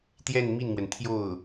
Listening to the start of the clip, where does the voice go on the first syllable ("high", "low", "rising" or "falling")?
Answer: falling